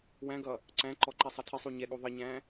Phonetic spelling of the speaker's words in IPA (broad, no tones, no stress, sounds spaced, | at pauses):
w æ̃ ɡ ʌ | ǀ æ̃ ǃ ɔ ǃ ɛ sˤ ʌ tʰ ɪ sˤ u ɲ ɛ ɠ u ðˤ ə ɲ æ̃